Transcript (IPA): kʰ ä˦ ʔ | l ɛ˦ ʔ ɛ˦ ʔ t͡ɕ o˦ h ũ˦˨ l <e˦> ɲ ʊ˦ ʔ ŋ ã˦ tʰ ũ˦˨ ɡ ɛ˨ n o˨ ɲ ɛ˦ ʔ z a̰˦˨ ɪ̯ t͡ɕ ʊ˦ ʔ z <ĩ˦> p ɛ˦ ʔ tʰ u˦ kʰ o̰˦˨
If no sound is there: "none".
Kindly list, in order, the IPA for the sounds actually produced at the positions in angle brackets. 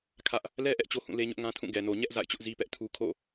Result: e˦, i˦

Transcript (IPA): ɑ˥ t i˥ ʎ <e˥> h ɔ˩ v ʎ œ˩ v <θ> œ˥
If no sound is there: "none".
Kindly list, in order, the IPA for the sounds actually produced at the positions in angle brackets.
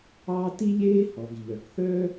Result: eː˥, θ

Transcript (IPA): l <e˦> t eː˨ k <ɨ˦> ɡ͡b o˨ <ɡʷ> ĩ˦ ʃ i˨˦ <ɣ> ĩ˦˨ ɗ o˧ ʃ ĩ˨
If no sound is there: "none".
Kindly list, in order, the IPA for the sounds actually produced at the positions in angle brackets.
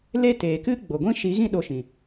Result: e˦, ɨ˦, ɡʷ, ɣ

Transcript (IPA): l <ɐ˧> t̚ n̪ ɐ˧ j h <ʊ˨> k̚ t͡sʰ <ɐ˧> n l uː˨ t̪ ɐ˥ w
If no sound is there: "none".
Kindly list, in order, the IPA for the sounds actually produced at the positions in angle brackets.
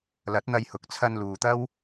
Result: ɐ˨˥, ʊ˨, ɐ˧

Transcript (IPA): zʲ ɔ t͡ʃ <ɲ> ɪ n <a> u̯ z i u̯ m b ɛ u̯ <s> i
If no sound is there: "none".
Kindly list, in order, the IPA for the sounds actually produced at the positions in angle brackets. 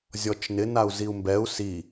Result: n, a, s

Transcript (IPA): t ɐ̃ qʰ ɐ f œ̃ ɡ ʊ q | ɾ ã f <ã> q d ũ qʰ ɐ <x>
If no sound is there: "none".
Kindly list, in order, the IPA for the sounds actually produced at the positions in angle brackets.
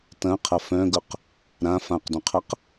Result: ã, q

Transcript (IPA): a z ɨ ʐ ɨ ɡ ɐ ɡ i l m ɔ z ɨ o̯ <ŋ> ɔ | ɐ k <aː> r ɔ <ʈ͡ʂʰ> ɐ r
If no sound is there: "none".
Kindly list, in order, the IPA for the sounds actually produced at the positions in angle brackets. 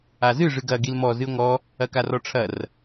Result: ŋ, a, ʈ͡ʂʰ

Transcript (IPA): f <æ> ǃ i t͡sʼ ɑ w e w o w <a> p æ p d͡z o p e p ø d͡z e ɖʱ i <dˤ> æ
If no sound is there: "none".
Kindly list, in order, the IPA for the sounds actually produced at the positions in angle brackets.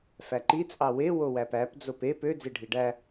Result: æ, æ, ɖ

